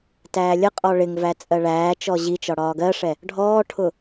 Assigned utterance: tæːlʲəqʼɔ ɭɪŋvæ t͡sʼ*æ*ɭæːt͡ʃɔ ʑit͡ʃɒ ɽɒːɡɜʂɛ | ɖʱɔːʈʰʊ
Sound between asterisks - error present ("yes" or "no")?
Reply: yes